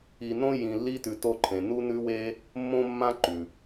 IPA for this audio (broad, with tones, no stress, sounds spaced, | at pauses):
i˧ n õ˥ j ĩ˧ lː i˥ t ʉ˧ t o˥ ǃʰ ẽ˧ n u˥ n ʉ˥ w e˥ | mː õ˥ mː ã˥ ǃ ʉ˩